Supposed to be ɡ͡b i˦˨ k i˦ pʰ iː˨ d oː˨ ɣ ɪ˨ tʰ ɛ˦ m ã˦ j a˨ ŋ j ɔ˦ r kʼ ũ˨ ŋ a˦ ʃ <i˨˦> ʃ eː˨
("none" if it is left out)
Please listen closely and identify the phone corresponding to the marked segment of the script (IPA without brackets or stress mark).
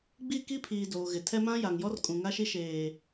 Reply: i˦